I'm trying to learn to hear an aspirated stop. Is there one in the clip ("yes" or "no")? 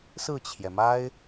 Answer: yes